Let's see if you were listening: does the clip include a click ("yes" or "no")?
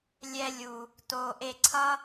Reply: yes